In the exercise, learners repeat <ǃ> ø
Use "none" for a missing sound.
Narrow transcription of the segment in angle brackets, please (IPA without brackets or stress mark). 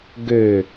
ɡ